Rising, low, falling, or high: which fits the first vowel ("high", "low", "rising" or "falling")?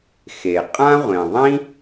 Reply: low